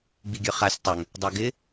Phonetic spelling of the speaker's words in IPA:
ɡ͡biɡʲœχasʲ tˤœŋ | dˤaɡɪ

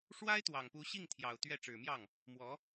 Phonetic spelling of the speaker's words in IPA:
ʂwa˥ɪ̯t̪wɑ˨˩ŋ pu˧˥ɕi˥˩ŋt̪ʰjɑ˨˩ʊ̯ t̪ɥɛ˥˩ʈ͡ʂɻ̩˨˩mjɑ˥˩ŋ | mwɔ˧˥

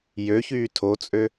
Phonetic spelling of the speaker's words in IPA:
jøçyː tʰot͡sʼø

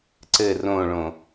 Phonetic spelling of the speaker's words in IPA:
ǀɘ rõɭõ

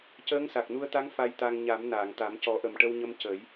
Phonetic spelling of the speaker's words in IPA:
cəː˧˥ŋsa˨˩k̚nu˧ə̯t̪a˧˥ŋ fa˧jt̪a˧ŋ ɲa˨˩˦m naː˨˩˨ŋt̪a˨˩˦m cɔ˨˩˦ʔə˨˩mʈə˧wɲə˧m cə˨˩˦j

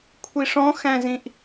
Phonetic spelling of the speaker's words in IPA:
kʷʰiʂɔ̃xæ̃zĩʔ

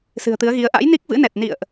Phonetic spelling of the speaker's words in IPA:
sɨ̤˨˩ə̯t̪ɨ˨˦ə̯ɣi˨˦ə̯ ʔa̰˧˥jni˦˥k̚vɨ̰˧˥nɛ˨˩t̚ nḭ˧˨ə̯ʔ

